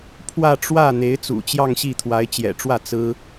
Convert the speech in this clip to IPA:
pʰ w ä˥˧ ʈ͡ʂ w ä˥˩ n̪ e˧˥ ɪ̯ t͡s ṵ˨˩ t͡ɕ j ɑ˥˧ ŋ ɕ i˥˩ t̪ʰ w a˧˥ ɪ̯ t͡ɕ j ɛ̰˨˩ ʈ͡ʂ w ä˥˩ t͡s ɹ̩˥

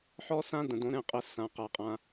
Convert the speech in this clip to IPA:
ħ ɔ˥ s ã˥ d ə̃˨ d õ˧˥ ɾ ɛ̃˥˩ qʼ ə˧˥ s ã˨ q a˨ qʼ ã˨

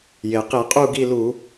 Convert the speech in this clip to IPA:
j e˩ q i˧˩˧ qʼ u˦˨ ɡ i˦˨ l u˧˩˧

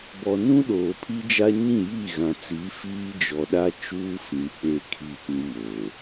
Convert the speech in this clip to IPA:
b ɔ˨ n ũ˦ ɗ oː˨ pʰ i˦ d͡ʒ a˦ ɲ ĩ˦˨ j i˦˨ ɣ ã˨ t͡s i˨˦ f iː˦ d͡ʒ ɔ˨ ɗ a˦ t͡ʃ uː˦ f ĩ˨ k͡p e˦˨ kʰ i˦˨ p ĩ˦ m oː˨

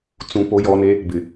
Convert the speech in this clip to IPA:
t͡s ũ˨ p o˨ j ɔ˨ n e˦ | b ɪ˨

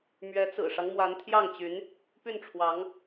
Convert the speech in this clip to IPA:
m ɥ ɛ˧˥ t͡s ɹ̩˨˩ ʂ ɑ˦ ŋ m w a˧˥ n t̪ʰ j ɑ˥˩ ŋ t͡ɕ y˧˥ n | p y˥˩ n ʈ͡ʂʰ w ɑ˧˥ ŋ

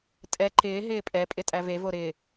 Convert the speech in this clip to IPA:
tʼ ɛ ǃ ɪː ɦ ɪː pʼ ɛ pʼ ɪ tʼ æ v e v o ɾ ɪː

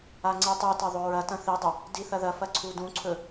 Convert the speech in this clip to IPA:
a ŋ͡ǀ i tˤ ʉ t ɐ ðˤ ɵ ɹ ɐ t ɐ̃ θ i dˤ ɐ | d i θ ɐ ð ɐ f ɐ ǀʰ u d ũ ǀʰ ɵ

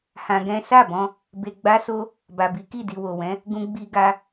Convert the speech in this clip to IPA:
h ã˧ ɡ ɛ̃˦ s a˦˨ b ɔ̃˧ | b e˧ ɡ͡b a˦ s o˦ | b a˨ b i˨˦ k i˦˨ d i˨ w o˨ w ɛ̃˨˦ | ɡ ũ˦ ɡ͡b i˧ ɡ a˧

